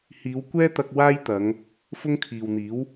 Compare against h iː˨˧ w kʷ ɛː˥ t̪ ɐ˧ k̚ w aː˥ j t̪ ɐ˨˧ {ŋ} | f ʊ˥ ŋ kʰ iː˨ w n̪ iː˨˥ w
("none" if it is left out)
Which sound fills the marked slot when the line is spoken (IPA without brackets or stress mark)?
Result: ŋ